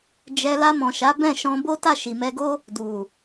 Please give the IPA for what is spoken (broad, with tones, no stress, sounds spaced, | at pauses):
d͡ʒ ɛ˧ l a˧ m ɔ̃˨ ʃ a˨˦ b ɛ̃˦˨ ʃ ɔ̃˧ b o˦ t a˦˨ ʃ i˨ m ɛ˧ ɡ o˦ | d u˨